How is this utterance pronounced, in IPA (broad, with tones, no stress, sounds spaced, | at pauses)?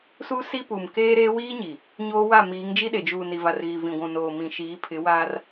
s u˦ s i˦ p u˨ m k eː˦ ɾ eː˦ w iː˦ ɲ i˨ | ɲ oː˦ w a˦˨ m iː˨˦ ŋ d͡ʒ i˦ ɗ e˨ d͡ʒ uː˨ n i˨ v a˨ r ɣ i˨ v ĩ˨ ɡʷ ũ˨ n oː˨ m ĩ˨ ʃ iː˨˦ pʰ ɪ˨˦ w aː˦ r